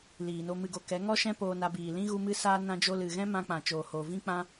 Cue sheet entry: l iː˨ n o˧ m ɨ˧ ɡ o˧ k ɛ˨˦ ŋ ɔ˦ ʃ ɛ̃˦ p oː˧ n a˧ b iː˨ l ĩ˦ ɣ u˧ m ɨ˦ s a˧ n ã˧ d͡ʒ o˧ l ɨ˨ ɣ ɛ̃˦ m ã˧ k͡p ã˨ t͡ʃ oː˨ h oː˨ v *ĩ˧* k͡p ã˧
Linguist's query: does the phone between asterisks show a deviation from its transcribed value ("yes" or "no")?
no